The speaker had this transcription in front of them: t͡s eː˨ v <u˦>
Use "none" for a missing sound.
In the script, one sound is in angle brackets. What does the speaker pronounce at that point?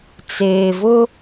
ʊ˦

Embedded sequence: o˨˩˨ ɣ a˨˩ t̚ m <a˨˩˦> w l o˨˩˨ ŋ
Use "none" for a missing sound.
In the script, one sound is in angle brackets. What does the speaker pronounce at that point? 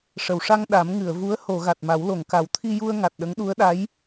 a˨˩˦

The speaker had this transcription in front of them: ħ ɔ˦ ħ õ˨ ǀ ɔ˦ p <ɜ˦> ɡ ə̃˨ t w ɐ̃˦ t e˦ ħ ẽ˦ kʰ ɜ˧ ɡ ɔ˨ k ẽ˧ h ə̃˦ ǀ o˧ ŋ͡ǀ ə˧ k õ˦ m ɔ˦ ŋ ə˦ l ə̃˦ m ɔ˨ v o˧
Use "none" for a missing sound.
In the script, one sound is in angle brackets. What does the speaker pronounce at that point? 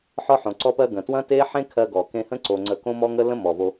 ɜ˦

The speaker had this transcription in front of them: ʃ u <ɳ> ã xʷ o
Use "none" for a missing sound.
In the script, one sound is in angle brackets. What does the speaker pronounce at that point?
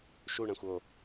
ɳ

